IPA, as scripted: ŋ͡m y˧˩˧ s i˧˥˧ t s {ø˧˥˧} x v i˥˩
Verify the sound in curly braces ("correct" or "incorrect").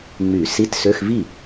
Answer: correct